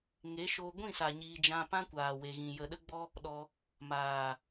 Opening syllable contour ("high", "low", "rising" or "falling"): rising